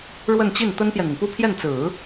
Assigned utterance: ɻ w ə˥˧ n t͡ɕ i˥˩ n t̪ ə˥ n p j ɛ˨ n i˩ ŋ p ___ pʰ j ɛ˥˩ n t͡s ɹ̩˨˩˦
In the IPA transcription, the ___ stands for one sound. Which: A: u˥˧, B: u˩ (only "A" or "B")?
A